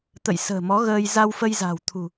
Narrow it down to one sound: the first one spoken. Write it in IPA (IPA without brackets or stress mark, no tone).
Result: t̪